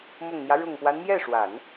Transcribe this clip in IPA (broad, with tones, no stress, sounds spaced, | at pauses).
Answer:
m ʊ˨˩ ŋ n̪ j ä˦ ɻ ʊ˨˩ ŋ p w a˦ n m j ɛ˥˩ ʂ w a˨˩˦ n